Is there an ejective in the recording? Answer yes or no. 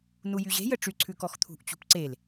no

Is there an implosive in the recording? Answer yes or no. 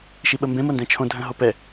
yes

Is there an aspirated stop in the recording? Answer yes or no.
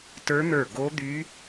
no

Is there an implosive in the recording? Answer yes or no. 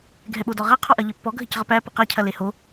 yes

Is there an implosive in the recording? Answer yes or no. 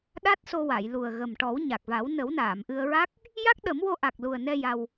yes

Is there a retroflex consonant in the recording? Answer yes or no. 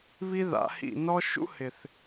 no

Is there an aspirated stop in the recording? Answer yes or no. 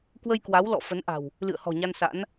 no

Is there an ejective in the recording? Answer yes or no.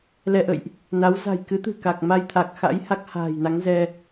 no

